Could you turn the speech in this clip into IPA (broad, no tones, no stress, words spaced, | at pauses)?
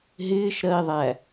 ɦɪːʃɾɜi̯ðˤæ